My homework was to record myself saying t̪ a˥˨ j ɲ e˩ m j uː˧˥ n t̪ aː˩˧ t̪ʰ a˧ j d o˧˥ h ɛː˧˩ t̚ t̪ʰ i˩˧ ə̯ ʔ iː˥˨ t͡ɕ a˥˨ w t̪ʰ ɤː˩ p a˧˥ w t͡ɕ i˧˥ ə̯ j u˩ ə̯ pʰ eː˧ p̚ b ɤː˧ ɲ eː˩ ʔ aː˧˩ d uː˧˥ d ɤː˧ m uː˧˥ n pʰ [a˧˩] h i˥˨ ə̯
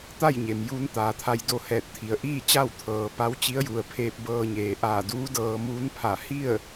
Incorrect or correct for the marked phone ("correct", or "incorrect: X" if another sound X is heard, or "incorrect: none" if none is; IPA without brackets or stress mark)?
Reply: correct